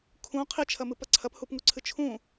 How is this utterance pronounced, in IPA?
kʰ ũ qʰ i t͡ʃʰ ɐ m ɨ p ɐ ǀʰ ɐ p h u p ŋ u ǀʰ ɨ t͡ʃʰ ũ

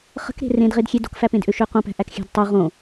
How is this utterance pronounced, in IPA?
χ ə̤ k ɾ e̤ r ẽ d ʁ e d xʲ e d o̤ k f æ p ẽ d ʔ ø ʃ ø q õ p æ̤ ʔ æ k xʲ æ̤ d tˤ o ʁ õ

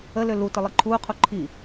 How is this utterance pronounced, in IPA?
ə l ø l u t ə lˠ i ǃʰ uː qʰ u ǃʰ i

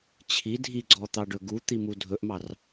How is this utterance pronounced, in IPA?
t͡ɕʰ i dʱ i ɡ͡ǀ ɔ t̪ ɑ ɖ ɵ ɡ u t̪ i m u dʱ ɵ ʔ m ɑ r

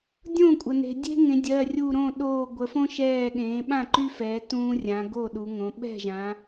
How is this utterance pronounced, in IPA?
dʲ õ˥˩ kʷʼ ə˩ n e̤˩ dʲ e̤˦ ŋ ẽ˩˧ dʲ ɜ˩˧˩ rʲ u˧˩ ɾ õ˥˩ ɗ oː˧˩ ɡʷ ə˩˧ f õ˦ ʃ ɛː˧˩ ɠ ẽː˩˧ ɓ ã˥˩ ǃ y˦ f ɛː˩˧ t ũː˦ rʲ ã˩˧ ɡ o˥˩ ɗ u˩˧ ŋ õ˩˧ ɓ ɛ̤˥˩ ʒ ã˩˧

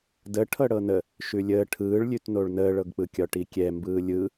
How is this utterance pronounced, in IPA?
d ə ʈʰ ɤ ɽ ɤ n ə | ʃ ʉ lʲ əː ʈʰ ɯː ɭ lʲ ʉ t n o ɭ n əː ɭ ɤ ɡ k͡p ɯ kʲ ɒ ʈ i kʲ ɛ m b ɯː lʲ ɯ

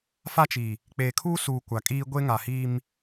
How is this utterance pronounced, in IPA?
f a˦ t͡ʃ i˨ | k͡p eː˨ kʰ uː˦ s uː˨ kʷ a˨ kʼ iː˦ ɡʷ e˦ ŋ a˨ h iː˦ m

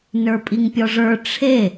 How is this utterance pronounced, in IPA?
n ə˞ pʼ i ŋ pʲ ɔ ʐ ə˞ ʈ͡ʂʰ e

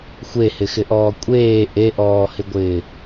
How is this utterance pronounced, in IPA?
xʷ e h ɪ x ɪ ʔ ɔː kʷʼ eː ʔ e ʔ ɔː h ɪ ɡʷ ɪː

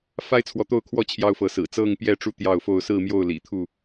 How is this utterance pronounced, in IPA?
f a˦ ɪ̯ t͡sʰ w ɔ˨˦ t̪ o˥˨ ʊ̯ kʰ w ɔ˥˨ t͡ɕʰ j ɑ˦ ʊ̯ f ɤ˨˦ s ɹ̩˨˩ t͡s ɤ˥˨ ŋ p j ɛ˥˨ ʈ͡ʂ u˥˨ t̪ j ɑ˥˨ ʊ̯ f o˥˨ ʊ̯ s ɹ̩˥˨ m j o˥˨ ʊ̯ l ḭ˨˩ t̪ʰ u˥˨

